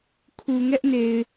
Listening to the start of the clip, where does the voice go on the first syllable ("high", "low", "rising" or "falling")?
low